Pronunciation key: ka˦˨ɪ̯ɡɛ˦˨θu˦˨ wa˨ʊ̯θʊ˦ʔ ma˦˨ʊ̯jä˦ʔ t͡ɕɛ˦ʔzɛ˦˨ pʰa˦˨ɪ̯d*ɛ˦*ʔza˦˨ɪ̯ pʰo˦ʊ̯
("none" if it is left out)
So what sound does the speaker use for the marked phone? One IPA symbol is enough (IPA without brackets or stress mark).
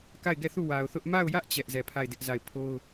ɪ˦